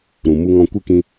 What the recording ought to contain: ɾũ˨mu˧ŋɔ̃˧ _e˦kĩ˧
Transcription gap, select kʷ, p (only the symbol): kʷ